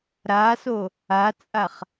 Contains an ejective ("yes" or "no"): yes